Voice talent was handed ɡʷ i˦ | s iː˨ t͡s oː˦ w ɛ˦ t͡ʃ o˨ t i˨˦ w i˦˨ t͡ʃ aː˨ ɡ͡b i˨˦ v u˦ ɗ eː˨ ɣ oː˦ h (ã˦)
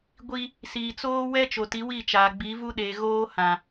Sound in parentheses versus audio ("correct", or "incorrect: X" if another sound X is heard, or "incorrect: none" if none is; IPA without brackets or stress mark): incorrect: ã˨